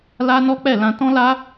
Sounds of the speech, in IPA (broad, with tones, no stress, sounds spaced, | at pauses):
l a˦ n ɔ˦ k͡p ɛ˦˨ l ã˧ t ɔ̃˦ l a˦